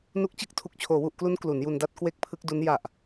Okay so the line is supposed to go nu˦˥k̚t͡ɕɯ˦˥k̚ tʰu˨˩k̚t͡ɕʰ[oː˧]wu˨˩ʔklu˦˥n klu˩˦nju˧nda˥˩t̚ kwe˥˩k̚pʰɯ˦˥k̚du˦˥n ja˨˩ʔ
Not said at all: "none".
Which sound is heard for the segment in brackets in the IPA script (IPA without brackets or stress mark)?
oː˩˦